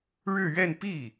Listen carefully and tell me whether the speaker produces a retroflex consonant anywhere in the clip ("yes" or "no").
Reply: yes